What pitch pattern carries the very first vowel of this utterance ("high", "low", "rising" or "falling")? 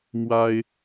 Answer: high